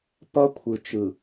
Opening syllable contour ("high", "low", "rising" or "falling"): high